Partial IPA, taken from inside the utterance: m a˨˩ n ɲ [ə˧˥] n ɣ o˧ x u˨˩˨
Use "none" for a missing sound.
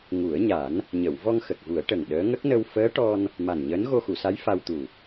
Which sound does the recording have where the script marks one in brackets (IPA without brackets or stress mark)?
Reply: əː˧˥